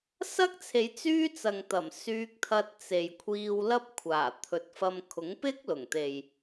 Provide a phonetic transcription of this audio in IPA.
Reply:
sɐ˥k̚t͡sʰe˨˧j t͡syː˥t͡sɐ˨ŋt̪ɐ˨˩m syː˧k̚t̪ʰɐ˧t̚ t͡se˨j kʷʰiː˧wlɐ˥p̚ kʷʰaː˨˩t̪ʰɵ˨t̚fɐ˧m kʰʊ˨˥ŋpɪ˥k̚lʊ˨˩ŋt̪e˨j

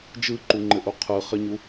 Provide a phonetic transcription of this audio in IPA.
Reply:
d͡ʒɯǃuŋ͡ǃɘʔu qʰɯχɘɲu

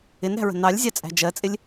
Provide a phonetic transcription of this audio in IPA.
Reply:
ɪnɾæ̤ɹə̤ nɑlʲzʲɑt͡sʼæ̤ d͡ʒɜt͡sʼɪlʲ

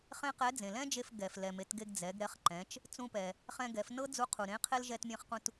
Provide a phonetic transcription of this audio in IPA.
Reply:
χẽ˥qɛ˧˥ d͡zẽ˩lɛ̃˥d͡ʒe˧f ɡɛ˩f lɛ˩me˩˧tɡe˧ɡ d͡zɛ˩˧ɡɾɛ˧˥χ ǃɛ̃˩˧t͡ʃ | t͡sũ˧pɛ˩ | χɛ̃˧ɡɛ˩˧fnɤ˥ d͡zu˧˥qʰu˩ ɾẽ˧˥qʰe˥l ʒɛ˧tmʲẽ˧χqũ˧t

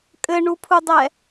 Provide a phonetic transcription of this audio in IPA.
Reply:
kʼɘɳupʰudˤɛ

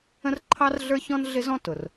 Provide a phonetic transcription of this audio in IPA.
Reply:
ə̃˥rǃʰɑ˥rɮə˞˥çɔ̃˥n ɮɪ˥zɔ̃˥ tʊ˩r

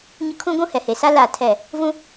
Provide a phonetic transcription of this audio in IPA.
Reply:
ɲʊ˦kʰũ˦ ɡʷũ˦hɛ˨he˨sa˦ la˦˨tʰɛ˦˨ | vũ˦

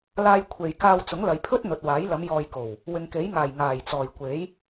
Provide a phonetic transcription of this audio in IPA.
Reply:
laː˧jkʷʰe˨j kaː˧wt͡sʊ˨˥ŋlɐ˨jpʰɵ˥t̚ n̪ɵ˨t̚waː˨˥j lɐ˨˧mjɔː˨jko˨˩w | wɪ˨ŋke˨˥jŋaː˨˩j ŋaː˨˩jt͡sɔː˨˩jkʷe˨˥j

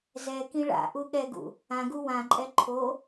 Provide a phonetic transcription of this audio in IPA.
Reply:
zɛkĩ ɭa̰ʔu ɠɛɡṵ | ãɡu wãǃʼɛ ǃʰo

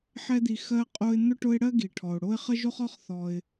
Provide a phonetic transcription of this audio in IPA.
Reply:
ħɛ˦d̪i˨ xɜ˦ qʼo˦ɪ̯ n̪ʊ˥ʈʊ˦ɪ̯ɽɜ˥ ɡi˩ ʈʰɔ˩ʊ̯ɽo˥ɪ̯ χə˥ʒo˥χɔ˦χ θɔ˩ɪ̯

